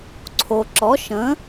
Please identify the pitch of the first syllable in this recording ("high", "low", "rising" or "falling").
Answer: low